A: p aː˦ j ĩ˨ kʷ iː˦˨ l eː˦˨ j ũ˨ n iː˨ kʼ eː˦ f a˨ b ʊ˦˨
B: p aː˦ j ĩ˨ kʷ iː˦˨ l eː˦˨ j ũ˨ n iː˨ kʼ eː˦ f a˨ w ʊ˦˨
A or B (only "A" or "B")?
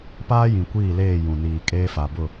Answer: A